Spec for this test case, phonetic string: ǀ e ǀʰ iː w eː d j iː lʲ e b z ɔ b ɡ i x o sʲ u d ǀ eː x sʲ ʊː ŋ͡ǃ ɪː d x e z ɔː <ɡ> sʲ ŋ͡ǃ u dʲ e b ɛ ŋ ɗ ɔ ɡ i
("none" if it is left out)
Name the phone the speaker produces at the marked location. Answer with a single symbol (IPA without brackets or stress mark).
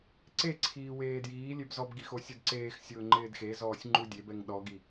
none